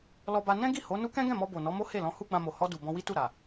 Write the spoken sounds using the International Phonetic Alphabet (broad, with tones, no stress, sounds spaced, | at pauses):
l ɔ˧ b a˧ n ɛ̃˦ ɡ i˦˨ h o˨˦ n u˦ k ɛ̃˦ ɡ ɛ̃˦˨ m ɔ˧ b o˨ n ɔ˨˦ m o˦ h e˦˨ l ɔ̃˧ h u˦ ɡ͡b ã˧ m o˨ h ɔ˧ d u˨ b ɔ̃˧ w i˦ t u˦˨ ɾ a˨